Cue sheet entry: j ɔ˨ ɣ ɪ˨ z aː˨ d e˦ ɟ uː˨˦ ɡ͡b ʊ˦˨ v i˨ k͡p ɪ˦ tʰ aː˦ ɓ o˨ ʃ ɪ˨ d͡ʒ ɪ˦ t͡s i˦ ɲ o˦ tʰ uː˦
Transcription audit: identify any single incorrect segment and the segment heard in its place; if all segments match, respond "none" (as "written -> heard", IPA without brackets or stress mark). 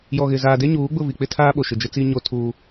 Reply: ɟ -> ɲ